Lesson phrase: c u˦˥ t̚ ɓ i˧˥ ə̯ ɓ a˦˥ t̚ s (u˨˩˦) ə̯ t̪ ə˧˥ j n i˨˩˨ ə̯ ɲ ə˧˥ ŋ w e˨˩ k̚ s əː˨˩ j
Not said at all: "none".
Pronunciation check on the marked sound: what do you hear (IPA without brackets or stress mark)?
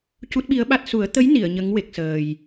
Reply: u˨˩˦